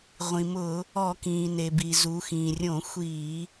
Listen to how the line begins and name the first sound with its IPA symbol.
ʁʷ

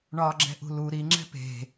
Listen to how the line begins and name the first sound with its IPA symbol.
ɳ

